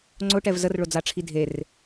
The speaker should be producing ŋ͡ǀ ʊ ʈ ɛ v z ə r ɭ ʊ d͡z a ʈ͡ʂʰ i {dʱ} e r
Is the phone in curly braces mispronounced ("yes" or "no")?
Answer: no